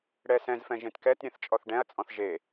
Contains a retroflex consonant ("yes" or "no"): yes